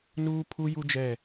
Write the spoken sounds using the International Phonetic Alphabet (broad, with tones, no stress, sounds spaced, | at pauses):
n uː˦ pʰ u˦ j u˦ d͡ʒ ɛ˦˨